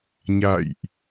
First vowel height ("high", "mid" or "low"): low